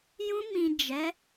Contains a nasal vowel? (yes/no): yes